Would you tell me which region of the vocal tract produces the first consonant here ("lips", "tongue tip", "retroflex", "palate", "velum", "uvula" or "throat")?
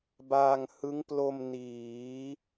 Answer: lips